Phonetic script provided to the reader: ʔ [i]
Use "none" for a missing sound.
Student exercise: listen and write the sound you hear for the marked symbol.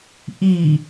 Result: i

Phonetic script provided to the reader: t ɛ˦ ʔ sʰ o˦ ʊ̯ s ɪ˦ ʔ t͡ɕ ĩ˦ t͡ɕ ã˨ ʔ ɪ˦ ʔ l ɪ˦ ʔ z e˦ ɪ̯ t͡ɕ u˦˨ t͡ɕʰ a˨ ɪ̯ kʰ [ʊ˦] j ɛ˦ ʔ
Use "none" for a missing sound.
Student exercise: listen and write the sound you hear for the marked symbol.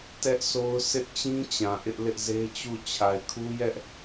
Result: u˦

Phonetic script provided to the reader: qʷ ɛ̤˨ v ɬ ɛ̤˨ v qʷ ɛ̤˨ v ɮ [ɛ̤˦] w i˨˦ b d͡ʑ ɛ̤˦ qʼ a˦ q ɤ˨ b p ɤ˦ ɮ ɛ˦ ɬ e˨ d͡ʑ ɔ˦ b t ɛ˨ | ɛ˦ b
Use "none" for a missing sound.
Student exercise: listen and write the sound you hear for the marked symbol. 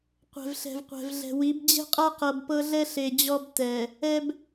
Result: ɛ̤˨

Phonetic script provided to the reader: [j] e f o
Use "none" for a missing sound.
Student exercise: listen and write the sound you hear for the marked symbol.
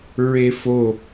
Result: ɹ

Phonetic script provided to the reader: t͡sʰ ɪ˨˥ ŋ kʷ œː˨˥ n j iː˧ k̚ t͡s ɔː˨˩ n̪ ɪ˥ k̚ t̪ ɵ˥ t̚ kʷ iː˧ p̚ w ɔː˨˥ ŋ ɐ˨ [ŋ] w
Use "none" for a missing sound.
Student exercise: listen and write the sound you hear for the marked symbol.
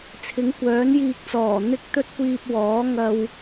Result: none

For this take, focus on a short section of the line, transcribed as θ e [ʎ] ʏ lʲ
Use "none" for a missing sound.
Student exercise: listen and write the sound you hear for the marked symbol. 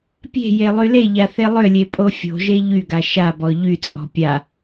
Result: lˠ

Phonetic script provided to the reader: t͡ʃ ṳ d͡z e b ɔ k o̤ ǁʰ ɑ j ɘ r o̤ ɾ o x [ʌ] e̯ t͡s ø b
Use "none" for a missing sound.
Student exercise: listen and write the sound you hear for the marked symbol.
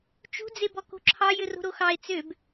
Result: ɑ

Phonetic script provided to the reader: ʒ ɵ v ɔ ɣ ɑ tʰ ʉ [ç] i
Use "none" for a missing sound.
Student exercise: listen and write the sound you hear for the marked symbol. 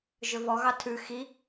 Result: x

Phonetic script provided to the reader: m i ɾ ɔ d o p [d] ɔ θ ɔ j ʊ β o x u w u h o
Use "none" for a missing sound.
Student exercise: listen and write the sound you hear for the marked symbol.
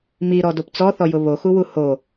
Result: t͡s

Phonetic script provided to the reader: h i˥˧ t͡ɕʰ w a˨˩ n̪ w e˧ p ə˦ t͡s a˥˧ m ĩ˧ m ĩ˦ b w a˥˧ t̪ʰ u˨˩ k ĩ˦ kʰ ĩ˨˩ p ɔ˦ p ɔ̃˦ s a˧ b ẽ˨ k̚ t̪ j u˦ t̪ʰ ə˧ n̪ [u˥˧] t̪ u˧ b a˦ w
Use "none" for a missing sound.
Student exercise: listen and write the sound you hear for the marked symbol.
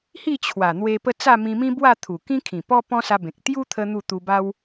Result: u˥˧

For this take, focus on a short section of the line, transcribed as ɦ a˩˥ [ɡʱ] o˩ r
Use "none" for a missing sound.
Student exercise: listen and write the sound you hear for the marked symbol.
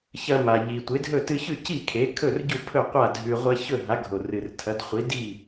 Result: ɡʱ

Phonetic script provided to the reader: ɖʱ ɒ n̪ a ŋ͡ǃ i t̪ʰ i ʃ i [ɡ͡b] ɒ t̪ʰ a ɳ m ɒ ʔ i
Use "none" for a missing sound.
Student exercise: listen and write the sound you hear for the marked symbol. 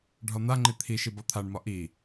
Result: b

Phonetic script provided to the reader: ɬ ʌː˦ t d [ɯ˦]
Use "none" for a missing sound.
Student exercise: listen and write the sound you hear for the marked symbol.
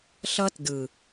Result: ɯ˨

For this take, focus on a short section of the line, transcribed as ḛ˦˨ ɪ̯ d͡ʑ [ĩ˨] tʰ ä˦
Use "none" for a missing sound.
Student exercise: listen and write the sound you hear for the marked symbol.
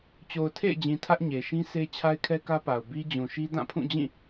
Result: ĩ˨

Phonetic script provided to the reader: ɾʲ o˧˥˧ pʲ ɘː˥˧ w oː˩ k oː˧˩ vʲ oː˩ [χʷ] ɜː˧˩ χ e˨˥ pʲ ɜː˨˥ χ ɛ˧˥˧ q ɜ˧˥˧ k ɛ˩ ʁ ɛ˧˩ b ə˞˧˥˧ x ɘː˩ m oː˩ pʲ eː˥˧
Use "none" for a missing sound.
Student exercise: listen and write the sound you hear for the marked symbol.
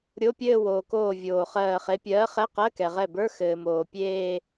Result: χ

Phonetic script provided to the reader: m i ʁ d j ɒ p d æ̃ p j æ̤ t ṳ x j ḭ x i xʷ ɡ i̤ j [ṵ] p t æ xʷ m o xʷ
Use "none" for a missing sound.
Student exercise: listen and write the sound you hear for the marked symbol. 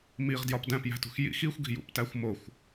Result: ṵ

